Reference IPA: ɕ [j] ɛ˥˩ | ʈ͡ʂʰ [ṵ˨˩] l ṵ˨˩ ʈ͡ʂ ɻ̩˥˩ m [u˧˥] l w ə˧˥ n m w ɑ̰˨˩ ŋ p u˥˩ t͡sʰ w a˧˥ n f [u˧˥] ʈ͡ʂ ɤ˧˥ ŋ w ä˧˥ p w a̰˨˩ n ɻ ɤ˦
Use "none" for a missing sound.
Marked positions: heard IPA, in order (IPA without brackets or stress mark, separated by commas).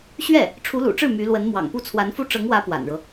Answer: ɥ, u˧˥, y˧˥, u˥